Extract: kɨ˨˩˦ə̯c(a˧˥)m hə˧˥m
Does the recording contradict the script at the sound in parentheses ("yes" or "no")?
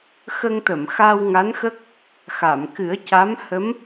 no